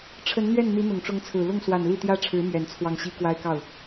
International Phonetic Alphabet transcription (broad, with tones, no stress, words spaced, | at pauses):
ʈ͡ʂʰə˧˥nn̪ɥɛ˥˩n n̪i˧˥n̪ʊ˨˩ŋʈ͡ʂʊ˧˥ŋt͡sʰɹ̩˨˩ lʊ˥˩ŋswa˨˩n li˥˩t̪jä˥ʈ͡ʂʰɻ̩˧˥ mɥɛ˨˩nt͡sʰwɑ˥˩ŋ ɕi˥kwa˥ɪ̯kɑ˥˩ʊ̯